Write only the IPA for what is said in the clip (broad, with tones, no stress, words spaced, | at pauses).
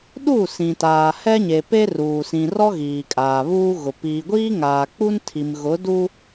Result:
ɗu˦˨ sĩ˨taː˨hɛ˦ɲe˨ pe˦ruː˨sĩ˨rɔ˦ ɣiː˨kʼaː˨βuː˦ɣʊ˨ piː˨ɡʷiː˦ŋaː˨k͡pu˦n tʰi˨mɣʊ˨˦du˦